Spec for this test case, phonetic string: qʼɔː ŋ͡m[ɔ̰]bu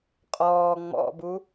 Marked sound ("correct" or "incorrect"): correct